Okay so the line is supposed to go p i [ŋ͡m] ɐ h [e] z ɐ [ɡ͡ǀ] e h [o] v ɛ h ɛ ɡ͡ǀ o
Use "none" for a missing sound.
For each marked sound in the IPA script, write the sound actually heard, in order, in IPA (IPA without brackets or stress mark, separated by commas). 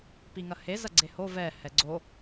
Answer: ŋ, e, ɡ͡ǀ, o